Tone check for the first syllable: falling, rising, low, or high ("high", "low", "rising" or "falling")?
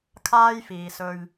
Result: high